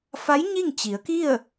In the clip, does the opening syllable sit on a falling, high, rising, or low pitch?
rising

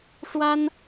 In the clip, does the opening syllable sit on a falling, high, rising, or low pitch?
high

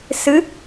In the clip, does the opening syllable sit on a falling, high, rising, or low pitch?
rising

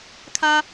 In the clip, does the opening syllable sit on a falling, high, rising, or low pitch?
high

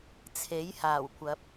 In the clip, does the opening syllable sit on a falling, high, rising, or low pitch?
rising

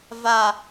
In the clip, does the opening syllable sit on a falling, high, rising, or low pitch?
low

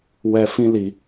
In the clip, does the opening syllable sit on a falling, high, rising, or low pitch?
low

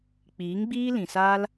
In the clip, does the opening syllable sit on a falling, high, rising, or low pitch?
rising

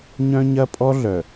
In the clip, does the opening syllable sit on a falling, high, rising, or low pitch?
high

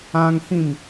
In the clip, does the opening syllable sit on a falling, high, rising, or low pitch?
high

